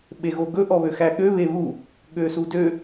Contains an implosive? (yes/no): yes